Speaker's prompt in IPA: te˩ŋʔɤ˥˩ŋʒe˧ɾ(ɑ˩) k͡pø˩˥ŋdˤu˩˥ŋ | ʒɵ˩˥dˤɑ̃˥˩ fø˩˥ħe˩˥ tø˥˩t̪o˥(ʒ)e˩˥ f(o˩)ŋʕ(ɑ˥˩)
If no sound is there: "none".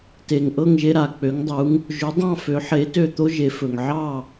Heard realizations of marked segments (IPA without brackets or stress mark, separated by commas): a˩, ʒ, ɵ˩, ɑ˥˩